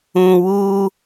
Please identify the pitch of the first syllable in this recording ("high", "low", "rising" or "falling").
low